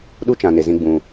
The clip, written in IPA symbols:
ɗ u˦ t͡ʃ ã˨ n e˨ z ĩ˧ ɡ͡b ũ˨

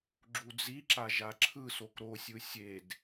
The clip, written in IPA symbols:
ɡ͡ǁ u d͡z i ǁ a ʒ a ǁʰ ɯ s o k ɾ o sʲ ɯ sʲ e d

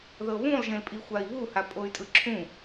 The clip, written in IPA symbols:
ð ɤ β ũ lˠ ʒ ẽ l pʼ i xʷ a i̯ β u h a pʼ o y̯ tʼ ɯ ǁʰ ũ

